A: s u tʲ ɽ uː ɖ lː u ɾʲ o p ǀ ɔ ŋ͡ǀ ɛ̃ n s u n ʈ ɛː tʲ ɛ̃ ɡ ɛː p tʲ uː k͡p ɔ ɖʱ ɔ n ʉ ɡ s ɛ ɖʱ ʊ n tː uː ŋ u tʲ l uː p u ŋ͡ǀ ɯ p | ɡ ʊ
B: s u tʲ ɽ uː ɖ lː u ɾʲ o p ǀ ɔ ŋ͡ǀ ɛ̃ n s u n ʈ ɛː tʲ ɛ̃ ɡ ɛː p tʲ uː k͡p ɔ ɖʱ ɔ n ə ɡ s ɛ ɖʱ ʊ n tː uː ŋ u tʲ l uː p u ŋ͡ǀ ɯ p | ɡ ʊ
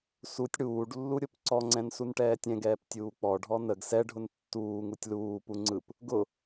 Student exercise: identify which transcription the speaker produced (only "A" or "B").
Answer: B